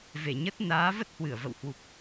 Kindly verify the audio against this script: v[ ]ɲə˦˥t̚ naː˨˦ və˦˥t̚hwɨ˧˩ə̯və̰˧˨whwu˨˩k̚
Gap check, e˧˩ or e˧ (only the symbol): e˧˩